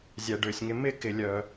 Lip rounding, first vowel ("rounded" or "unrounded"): unrounded